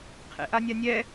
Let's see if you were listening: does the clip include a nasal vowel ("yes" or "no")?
no